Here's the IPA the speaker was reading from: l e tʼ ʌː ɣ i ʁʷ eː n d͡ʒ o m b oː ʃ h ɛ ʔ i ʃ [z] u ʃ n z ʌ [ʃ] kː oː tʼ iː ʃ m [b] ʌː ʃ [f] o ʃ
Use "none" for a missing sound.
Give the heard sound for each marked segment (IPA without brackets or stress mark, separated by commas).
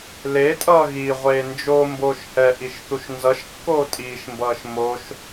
θ, ʃ, b, m